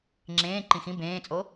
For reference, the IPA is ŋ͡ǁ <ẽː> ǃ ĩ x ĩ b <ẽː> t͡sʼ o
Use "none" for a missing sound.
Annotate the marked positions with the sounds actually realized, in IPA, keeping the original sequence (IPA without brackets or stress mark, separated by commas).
ẽː, ẽː